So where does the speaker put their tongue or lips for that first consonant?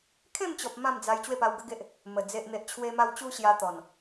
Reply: velum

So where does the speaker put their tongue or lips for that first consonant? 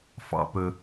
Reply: lips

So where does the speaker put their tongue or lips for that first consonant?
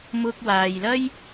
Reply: lips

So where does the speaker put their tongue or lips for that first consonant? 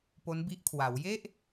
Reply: lips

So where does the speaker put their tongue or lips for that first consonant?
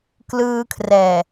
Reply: velum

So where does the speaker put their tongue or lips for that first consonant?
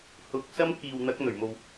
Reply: throat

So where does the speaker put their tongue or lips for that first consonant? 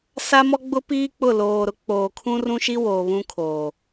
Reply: tongue tip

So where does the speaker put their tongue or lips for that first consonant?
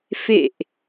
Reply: lips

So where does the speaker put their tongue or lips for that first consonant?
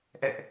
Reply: throat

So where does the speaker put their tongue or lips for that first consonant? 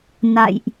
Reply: tongue tip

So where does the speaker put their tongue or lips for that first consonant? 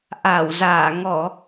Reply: throat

